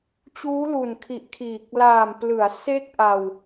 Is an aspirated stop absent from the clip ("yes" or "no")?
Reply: no